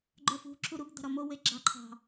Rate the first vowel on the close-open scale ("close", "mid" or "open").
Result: mid